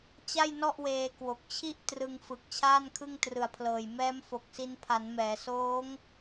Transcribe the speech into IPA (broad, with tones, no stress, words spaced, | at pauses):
t͡ɕa˥˩jnɔ˥˩ʔweː˧ kwo˨˩k̚t͡ɕʰi˥˩ʔ trɯ˧ŋfɯ˨˩k̚ t͡ɕʰaː˥˩nkʰɯ˥˩ŋ trɯ˨˩a̯pʰlɤː˨˩j mɛː˦˥mfo˨˩k̚si˧n pʰa˩˦nmɛː˩˦soː˦˥ŋ